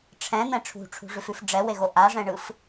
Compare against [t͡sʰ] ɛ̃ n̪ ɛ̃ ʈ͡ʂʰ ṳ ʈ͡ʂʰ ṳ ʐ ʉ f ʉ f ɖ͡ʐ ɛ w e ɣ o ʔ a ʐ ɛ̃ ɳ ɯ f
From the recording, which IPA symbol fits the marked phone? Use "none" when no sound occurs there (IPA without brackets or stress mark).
ʈ͡ʂʰ